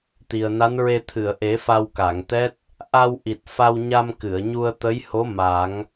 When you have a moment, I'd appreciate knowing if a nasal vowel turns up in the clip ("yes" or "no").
no